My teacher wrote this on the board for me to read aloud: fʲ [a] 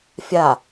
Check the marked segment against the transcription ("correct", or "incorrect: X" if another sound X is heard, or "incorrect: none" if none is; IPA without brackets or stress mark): correct